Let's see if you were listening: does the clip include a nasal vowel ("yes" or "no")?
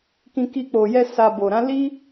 yes